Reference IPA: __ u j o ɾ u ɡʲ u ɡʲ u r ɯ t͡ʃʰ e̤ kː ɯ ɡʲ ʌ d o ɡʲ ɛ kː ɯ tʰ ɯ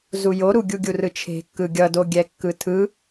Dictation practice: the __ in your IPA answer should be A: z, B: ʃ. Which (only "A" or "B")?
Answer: A